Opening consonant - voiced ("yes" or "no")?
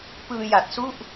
no